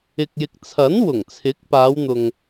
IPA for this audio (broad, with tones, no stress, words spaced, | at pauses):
ɪ˨k̚jɪ˨k̚t͡sʰɐ˨˥n wʊ˨˩ŋt͡sʰɪ˨˥k̚ paː˨˧wn̪ʊ˨ŋ